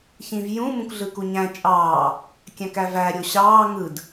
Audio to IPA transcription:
ç ĩ v j ũ m ũ k ɮ ɯ k u ɲ æ̃ t͡ʃʼ ɑː | kʲ æ̃ k æ v æ ɾʲ o ɕ ɑː ŋ ɯ d

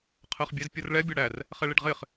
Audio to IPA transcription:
qʰ ɜ χ bʲ æ z pʲ ʌ r ɭ ɛ bʲ ɒ ɽ æ r | χ ɛ ɭ i ɖ ʁ ɪ χ

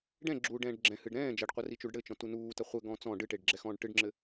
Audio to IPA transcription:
ɖ ɛ̃ ɡ͡ǁ uː ɖ ɛ̃ː ɖ ɡ͡ǁ ɛ̃ h ɨ ɖ ɾ ɛ̃ː d͡ʒ ɐ ɖ qʷ ɐ r i t͡ʃ u ɖ ɽ ɘ t͡ʃ ɔ̃ t u n uː t ɐ χʷ ɘ ɡ ɔ̃ t͡s ɔ̃ ɖ ɨ ʈ e ɖ ɡ͡ǁ ɛ x ɔ̃ː ɖ ʈ ɨ ɖ ŋ͡ǁ ɘ

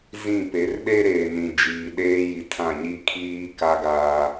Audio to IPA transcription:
z ĩ˦˨ p e˨˦ r ɗ e˦ ɾ eː˨ n ĩ˨ d͡ʒ iː˨ ɗ eː˦ j i˨ tʰ ã˦˨ ɲ i˦ kʰ iː˦ k a˦ ɡ aː˦

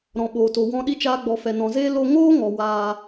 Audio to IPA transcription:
ɾ ɔ̃˨ ɓ oː˨ t o˨ w ɔ̃˧ ɗ i˧ t͡ʃ aː˧ ɡ͡b ɔ˨ f ɛ˨ n ɔ̃˨ z eː˦ l o˧ ŋ oː˦ ŋ ɔ˨ w aː˧

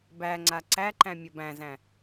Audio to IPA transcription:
b æ ŋ͡ǀ a ǀ æ ǃ æ̃ mʲ ʌ b æ̃ z æ̃

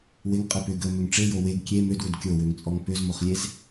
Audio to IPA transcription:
w ɪ ŋ qʼ ə p ʏ ɡ ə m ʏ ŋ ʈ͡ʂ e j o w e ɡ kʲ e m ø d w ʏ d kʲ o w ø ŋ t͡sʼ ɔ ŋ p ø z m o χ lʲ e z

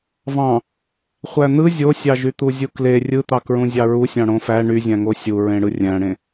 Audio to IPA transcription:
v ɑ̃ | χʷ æ n̪ ɯ zʲ o sʲ ɑ ʒ y t̪ u zʲ u k l e rʲ ɯ t̪ ɑ k ɹ ũ zʲ ɑ ɹ u sʲ ɑ̃ ɽ õ f æ ɳ y zʲ æ̃ ŋ o sʲ u ɹ ẽ ɽ ɯ rʲ æ̃ ɽ ẽ

